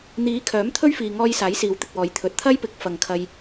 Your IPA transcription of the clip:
n̪ iː˨˥ kʰ œː˨˥ m t̪ʰ ɵ˥ ɥ f iː˨ ŋ ɔː˧ j s aː˨˥ j s iː˨˧ w t̪ ɪ˨ k̚ w ɔː˨˧ j t̪ʰ ɵ˨ t̚ t̪ʰ ɐ˥ j p ɪ˨˥ k̚ f ɐ˧ ŋ kʰ ɐ˥ j

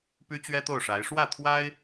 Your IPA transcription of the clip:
p y˥ t͡ɕ ɥ ɛ˥ t̪ o˥˩ ʊ̯ ʂ a˧˥ ɪ̯ ʂ w ä˥˩ t̪ʰ w a˥ ɪ̯

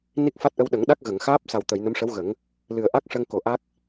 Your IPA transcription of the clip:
n i˦˥ k̚ f a˦˥ t̚ ʔ ə˧ w ɗ ə˨˩˦ ŋ ɗ a˦˥ k̚ ɣ ə˨˩˨ ŋ x aː˦˥ p̚ s a˨˩ w t̪ ə˨˩˨ j n ə˧˥ m ʂ ə˧˥ w ɣ ə˨˩˦ ŋ | l ɨ˨˩ ə̯ ʔ a˦˥ k̚ ʂ ə˧ ŋ k o˨˩˦ ʔ a˦˥ k̚

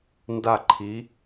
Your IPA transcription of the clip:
n d a˥˨ ǃʰ i˨˥

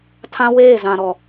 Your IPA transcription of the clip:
tʰ ã˦ w eː˦˨ z ã˨ ɾ ɔ˨

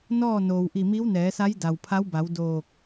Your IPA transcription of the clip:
n ɔː˥˨ n oː˩ w ʔ i˧˩ m i˧˥ w n ɛː˩˧ s a˧˥ j d a˩ w pʰ a˧˥ w b a˩˧ w d oː˧˩ k̚

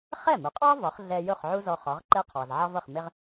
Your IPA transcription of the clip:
χ ɛ˥˩ m u˩˥ qʼ ɑ˥ v ɒ˩˥ χ ɮ ɛ˧ j ʊ˥˩ χ ʕ u˥ z ɔ˧ χ ɒ˩˥ ʁ ǃ ɛ˥ qʰ ɑ˩ z ʕ ɑ˥ v ʌ˥˩ χ m ɪ˥ ʁ

